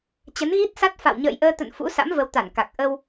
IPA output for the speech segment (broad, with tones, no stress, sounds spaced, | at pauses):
t͡ɕ ə˨˦ n ɣ i˦˥ t̚ s a˦˥ t̚ f a̰˧˨ w ɲ ə̰ː˧˨ j ʔ əː˧ t̪ ə̰˧˨ n f ṵ˧˥ s a̰˧˥ m v ə˨˦ w t̪ a˧˩ n k a˨˩ k̚ ʔ ə˧ w